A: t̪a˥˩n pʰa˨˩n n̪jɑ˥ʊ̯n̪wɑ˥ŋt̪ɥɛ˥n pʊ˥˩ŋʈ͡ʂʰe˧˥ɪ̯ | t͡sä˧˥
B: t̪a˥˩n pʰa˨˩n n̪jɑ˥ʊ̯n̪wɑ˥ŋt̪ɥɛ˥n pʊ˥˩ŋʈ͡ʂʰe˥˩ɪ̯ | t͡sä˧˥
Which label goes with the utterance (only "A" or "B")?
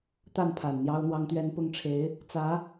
A